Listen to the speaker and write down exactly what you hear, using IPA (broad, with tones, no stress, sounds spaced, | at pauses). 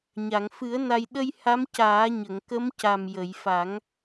ɲ a˨˩˨ ŋ f ɨ˨˩˦ ə̯ n a˧ j ɗ ə˧ j h a˧˥ m c aː˨˩˦ ɲ ə˨˩˨ ŋ k ə˧˥ m c a˨˩ m j ə˨˩˨ j f a˨˩˦ ŋ